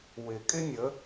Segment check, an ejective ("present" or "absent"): present